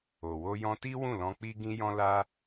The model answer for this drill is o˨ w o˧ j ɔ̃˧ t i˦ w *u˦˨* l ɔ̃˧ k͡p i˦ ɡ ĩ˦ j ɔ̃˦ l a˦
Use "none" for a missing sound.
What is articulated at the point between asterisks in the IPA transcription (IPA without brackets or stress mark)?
ũ˦˨